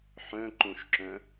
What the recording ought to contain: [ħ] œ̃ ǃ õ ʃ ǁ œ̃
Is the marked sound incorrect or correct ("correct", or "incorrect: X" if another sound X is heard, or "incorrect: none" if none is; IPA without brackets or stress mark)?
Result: correct